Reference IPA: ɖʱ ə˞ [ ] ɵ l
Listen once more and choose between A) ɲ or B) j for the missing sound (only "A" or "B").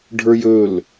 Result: B